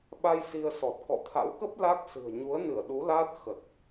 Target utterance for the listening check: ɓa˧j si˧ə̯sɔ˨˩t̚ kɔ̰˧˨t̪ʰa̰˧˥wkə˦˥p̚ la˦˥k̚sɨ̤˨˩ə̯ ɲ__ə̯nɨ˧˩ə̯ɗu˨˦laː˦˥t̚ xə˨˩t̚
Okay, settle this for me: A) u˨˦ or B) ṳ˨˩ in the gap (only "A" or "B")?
A